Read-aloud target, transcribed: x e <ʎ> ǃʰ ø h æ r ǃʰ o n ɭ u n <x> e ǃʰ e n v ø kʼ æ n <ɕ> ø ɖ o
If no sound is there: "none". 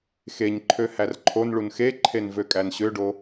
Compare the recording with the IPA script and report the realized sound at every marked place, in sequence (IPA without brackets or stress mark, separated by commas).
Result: ɲ, x, ɕ